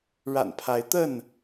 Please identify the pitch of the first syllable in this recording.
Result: low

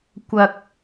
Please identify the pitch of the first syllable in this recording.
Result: low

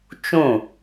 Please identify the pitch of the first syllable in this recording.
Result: falling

